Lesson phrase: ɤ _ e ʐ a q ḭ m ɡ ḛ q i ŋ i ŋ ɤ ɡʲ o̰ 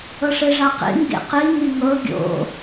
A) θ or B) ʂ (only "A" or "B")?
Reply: B